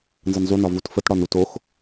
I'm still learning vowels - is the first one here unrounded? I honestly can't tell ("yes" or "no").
yes